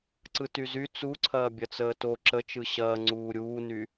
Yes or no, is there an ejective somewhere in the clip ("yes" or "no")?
no